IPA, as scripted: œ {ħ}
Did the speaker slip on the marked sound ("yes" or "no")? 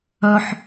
no